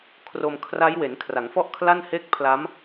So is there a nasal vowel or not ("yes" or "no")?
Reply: no